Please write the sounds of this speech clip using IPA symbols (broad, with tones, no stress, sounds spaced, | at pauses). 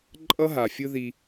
ǃʼ ʌ˦ ɦ a˨ fʲ ɯ˦ ð i˦